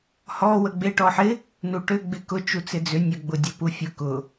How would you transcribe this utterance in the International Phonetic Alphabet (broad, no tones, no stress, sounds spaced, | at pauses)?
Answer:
h ɔ w ə ɡ͡b ɪ ʈ ɔ ħ ɪ | n u ʈ ʏ ɡ͡b ɪ k ʊ t͡ʃ u t͡s ɪ d͡z ʏ nʲ ə ɡ͡b ʊ dʲ ə p u fʲ ʊ k ʊ